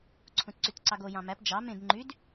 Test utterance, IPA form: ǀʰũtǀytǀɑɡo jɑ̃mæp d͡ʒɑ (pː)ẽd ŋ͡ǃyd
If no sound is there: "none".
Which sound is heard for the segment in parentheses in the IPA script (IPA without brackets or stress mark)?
m